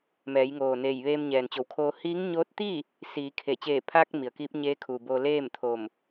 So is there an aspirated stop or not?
yes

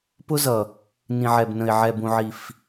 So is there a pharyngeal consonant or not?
yes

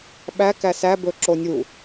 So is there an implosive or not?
yes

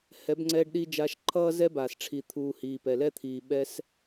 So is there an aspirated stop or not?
yes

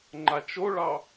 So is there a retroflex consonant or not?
yes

